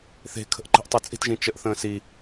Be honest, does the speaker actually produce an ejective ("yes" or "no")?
yes